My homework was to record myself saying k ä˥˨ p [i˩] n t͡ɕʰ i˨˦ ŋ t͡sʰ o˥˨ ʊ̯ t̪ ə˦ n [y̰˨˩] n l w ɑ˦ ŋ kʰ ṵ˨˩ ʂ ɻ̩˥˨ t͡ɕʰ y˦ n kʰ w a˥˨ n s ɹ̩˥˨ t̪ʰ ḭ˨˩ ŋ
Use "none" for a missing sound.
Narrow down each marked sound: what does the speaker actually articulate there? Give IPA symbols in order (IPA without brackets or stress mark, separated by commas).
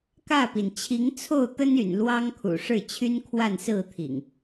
i˩, y̰˨˩